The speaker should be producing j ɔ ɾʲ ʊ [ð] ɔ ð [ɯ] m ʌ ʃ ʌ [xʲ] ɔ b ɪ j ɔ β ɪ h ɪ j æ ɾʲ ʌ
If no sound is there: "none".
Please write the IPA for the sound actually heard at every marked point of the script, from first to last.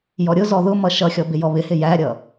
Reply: z, ʊ, xʲ

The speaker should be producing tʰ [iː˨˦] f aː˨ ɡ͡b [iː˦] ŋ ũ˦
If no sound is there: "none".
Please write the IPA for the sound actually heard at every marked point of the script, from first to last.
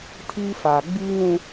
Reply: iː˦, iː˦

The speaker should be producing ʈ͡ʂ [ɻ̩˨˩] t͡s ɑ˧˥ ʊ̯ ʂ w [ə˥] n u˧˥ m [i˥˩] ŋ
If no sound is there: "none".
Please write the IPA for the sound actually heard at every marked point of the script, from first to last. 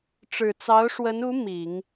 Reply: ɻ̩˨˩, ə˧˥, i˨˩˦

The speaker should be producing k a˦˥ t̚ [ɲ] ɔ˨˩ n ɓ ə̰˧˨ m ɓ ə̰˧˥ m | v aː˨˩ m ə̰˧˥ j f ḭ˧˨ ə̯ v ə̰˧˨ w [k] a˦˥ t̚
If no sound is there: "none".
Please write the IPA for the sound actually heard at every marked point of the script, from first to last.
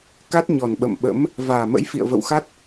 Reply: ɲ, x

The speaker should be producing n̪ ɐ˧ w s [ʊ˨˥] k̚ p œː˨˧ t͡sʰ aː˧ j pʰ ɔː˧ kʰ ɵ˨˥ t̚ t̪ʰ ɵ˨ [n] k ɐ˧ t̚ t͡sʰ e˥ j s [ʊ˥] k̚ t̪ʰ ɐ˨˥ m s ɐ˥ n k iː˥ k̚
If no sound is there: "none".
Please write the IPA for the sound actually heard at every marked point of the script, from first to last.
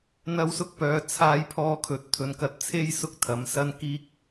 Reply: ʊ˧, n, ʊ˥

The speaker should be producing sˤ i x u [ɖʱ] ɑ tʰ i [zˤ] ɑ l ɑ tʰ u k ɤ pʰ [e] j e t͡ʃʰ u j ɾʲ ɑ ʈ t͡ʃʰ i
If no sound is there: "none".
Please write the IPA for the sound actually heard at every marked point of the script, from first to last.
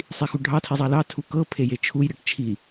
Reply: ɖʱ, zˤ, e

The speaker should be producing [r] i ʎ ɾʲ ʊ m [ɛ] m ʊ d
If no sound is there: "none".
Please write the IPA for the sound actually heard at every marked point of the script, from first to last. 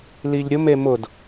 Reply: l, e

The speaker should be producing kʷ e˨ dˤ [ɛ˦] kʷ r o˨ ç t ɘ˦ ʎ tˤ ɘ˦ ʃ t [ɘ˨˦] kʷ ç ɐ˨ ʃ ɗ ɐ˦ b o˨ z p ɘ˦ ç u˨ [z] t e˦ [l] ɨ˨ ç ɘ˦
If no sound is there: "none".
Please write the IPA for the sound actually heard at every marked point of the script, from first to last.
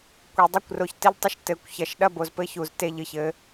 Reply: ɘ˦, ɘ˨˦, z, ʎ

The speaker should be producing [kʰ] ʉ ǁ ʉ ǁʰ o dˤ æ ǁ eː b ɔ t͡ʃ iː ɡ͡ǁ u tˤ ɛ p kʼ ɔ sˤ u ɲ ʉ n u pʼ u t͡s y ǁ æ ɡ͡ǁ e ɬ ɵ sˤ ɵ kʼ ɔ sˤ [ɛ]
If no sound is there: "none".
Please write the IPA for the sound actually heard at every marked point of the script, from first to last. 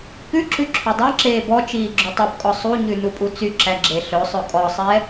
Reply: k, ɛ

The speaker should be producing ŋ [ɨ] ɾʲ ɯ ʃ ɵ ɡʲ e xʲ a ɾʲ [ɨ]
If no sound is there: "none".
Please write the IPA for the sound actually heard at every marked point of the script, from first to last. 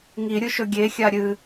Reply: i, ɨ

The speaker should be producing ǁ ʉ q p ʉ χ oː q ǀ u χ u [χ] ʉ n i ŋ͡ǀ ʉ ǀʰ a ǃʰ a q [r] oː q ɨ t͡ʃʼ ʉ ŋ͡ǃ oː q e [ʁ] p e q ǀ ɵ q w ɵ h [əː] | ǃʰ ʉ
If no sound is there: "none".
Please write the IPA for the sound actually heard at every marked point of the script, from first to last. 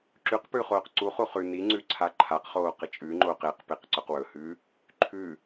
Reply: χ, χ, q, ʉː

